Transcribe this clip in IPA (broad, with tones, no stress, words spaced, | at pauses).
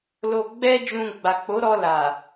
lo˧ɡ͡bɛ˦d͡ʒũ˧ ɡ͡ba˨k͡po˨˦ɾɔ˧ la˨